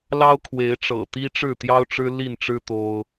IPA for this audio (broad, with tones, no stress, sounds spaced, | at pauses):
l ɑ˦ ʊ̯ kʰ w e˨˦ ɪ̯ ʈ͡ʂ ɤ̰˨˩ t̪ i˦ ʈ͡ʂ ɻ̩˥˨ t̪ j ɑ˦ ʊ̯ ʈ͡ʂ ɻ̩˦ l i˥˨ n ʈ͡ʂ ɻ̩˦ t̪ o˦ ʊ̯